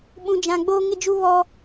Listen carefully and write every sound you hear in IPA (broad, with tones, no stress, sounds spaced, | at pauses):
ɓ ũ˦ d͡ʒ ã˦ ɡ͡b oː˦ ŋ ɪ˦ d͡ʒ u˦ β ɔ˦